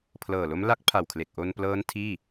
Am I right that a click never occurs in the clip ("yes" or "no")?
yes